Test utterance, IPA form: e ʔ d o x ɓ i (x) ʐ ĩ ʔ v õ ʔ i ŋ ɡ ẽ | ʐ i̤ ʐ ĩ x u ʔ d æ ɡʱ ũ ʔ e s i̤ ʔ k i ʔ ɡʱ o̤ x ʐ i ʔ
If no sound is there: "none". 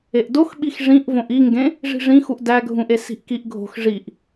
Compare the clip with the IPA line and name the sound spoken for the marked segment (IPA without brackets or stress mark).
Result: x